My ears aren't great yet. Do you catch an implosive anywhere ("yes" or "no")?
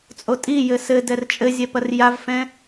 no